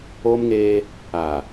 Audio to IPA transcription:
o˦ m ŋ eː˦ | a˨

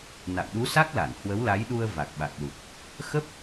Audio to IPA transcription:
n a̰˧˨ w ɗ u˨˦ s a˦˥ k̚ l a˧˩ n h w ə˨˦ w l a˨˦ j ɗ u˧ ə̯ v a˨˩ k̚ ɓ a˨˩ k̚ l u˨˩ t̚ | x ə˦˥ p̚

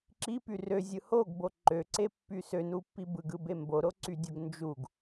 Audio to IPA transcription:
ǁ i p y r ø zʲ ɯ h o ɡ b o ǃ ø ǀ e pː y s ø n u pː i b ɯ ɡ ɯ b e m b o ɾ o ǀ y dʲ o ɡ n d͡ʒ u ɡ

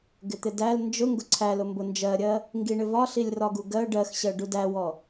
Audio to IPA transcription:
ɡ ɪ t̪ ɪ d æ l n d͡ʒ ʊ ŋ ɡ ʊ ǀʰ æ l ʊ m b ʊ n d͡ʒ ɜ ɾʲ ɜ | ŋ ɡ i ɳ ɪ v ɒ ɬ i lʲ r ɒ ɡ u ɡ ɜ ɖ ɜ x ɕ ɜ ɖ u d æ w ɔ

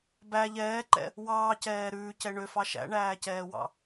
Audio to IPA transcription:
b æ ʎ ɛː ǃ ɛ̰ | w ɑː c ɛː ɾ ʉː c ɛ ɳ ø f ɑ ʃ æ̰ ɳ æː c ɛː w ɑ̰

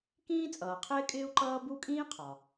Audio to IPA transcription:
k ĩː˥ t͡sʼ ʌː˩ qʰ ɪː˥ kʼ ɪː˥ u̯ ǃ ʌː˥ b u˥ kʼ ĩː˥ qʰ ɒ˩

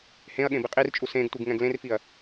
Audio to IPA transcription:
h ẽ ɐ̯ ɠ ẽ b i qʼ i r t͡ʃʼ u s ẽ ɡ tʷ ɯ ɡ ŋ ɛ̃ ɡ l ẽ r f i ɐ̯

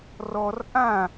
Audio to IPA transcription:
r ɔ r ʔ ã

